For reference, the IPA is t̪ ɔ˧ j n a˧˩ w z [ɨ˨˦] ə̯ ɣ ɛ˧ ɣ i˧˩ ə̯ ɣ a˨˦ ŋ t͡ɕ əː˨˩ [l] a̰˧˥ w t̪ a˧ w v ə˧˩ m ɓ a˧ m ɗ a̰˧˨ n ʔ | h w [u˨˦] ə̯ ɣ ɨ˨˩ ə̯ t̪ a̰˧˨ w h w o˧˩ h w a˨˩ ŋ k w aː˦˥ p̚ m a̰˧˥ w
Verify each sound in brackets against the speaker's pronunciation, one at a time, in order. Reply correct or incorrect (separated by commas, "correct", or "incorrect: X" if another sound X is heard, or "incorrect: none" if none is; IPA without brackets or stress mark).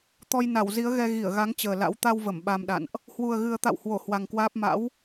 incorrect: i˨˦, correct, incorrect: u˨˩